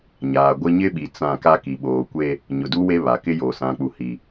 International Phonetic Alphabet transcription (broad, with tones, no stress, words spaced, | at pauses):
ɲaː˨ɡʷɪ˦ ɲɪ˦ɓi˨ t͡sã˦˨ ka˦ki˨ ɓoː˨kʷe˦ | ɲʊ˨du˦we˦ βa˨kɪ˦jo˨ sã˨k͡pu˨hi˨